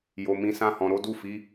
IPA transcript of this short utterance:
j o˨ m ĩ˨˦ s ã˦˨ h ɔ̃˨ ɾ o˨˦ d u˦˨ f i˨˦

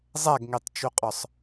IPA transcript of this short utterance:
zˤ æ ɡ ŋ e tˤ t͡ʃ u qʼ ɒ sˤ

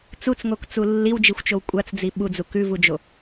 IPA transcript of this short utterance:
t͡s u t͡s ŋ o k t͡s u lː i w d͡ʒ i xʷ t͡ʃ o w kʷʼ a t͡s d͡z i ɓ u d͡z u k ʉ v u d͡ʒ o

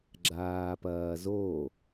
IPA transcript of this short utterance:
ɡ͡ǁ aː p ɐː z o

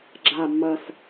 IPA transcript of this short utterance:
ɡ͡ǁ a˨˩ mː ɐ˨˩ s

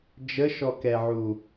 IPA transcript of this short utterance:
d͡ʒ ə ʃ ɔ k ɛ ʕ u

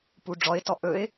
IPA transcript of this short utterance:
p u ɖ͡ʐ ɔ ɪ̯ t ɔ ʔ ɵ ɪ̯

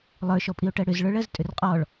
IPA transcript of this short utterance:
lˠ ə˞ ʃ ɔ pʼ i o̯ ʈ ɜ ɽ ʏ z ɭ ə˞ ɭ ɜ z tʼ ʏ r qʼ ɔ ɭ

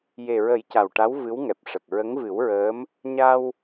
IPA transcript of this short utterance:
j e˨˩ ɹ ə˨˩˦ j c a˨˩ w ʈ a˧˥ w v ɨ˧˥ w ŋ ɛ˨˩ p̚ ʂ ə˨˩ k̚ ɹ ə˧˥ ŋ v ɨ˨˩˦ w ɹ əː˧˥ m | ɲ a˧ w

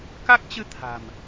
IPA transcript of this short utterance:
k a˦˥ k̚ t͡ɕ ɨ˧ t̪ʰ a̤˨˩ m

